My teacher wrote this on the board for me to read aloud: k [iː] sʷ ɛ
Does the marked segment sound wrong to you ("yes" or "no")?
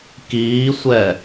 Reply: no